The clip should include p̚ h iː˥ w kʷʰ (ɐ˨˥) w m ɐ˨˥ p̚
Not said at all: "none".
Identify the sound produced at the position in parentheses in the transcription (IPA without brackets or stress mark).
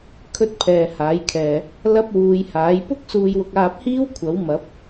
ɐ˨˥